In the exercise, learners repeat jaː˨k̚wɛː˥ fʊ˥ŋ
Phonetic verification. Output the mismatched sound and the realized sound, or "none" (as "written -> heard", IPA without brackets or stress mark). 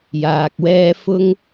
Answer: none